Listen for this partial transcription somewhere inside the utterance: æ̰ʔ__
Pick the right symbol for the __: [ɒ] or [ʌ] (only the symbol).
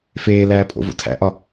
ɒ